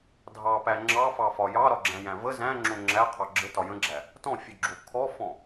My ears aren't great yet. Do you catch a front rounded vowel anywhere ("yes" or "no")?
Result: no